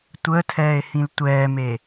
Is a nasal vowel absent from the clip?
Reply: no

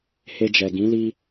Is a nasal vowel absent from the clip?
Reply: no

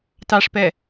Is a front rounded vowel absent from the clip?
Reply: yes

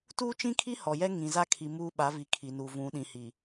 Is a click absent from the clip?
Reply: yes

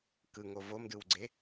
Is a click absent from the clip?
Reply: no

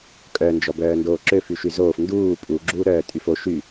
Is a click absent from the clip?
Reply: no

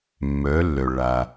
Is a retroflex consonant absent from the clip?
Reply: no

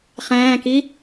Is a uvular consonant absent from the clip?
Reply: no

